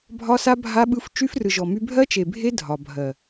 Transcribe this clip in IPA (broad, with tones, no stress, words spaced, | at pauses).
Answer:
bʱɒ˦sa˦ bʱa˦ɓɯ˦f t͡ʃy˦frɯ˨ʒɔ˨my˦ bʱɜ˦t͡ʃe˨bʱe˦ dʱɒ˨bʱɜ˨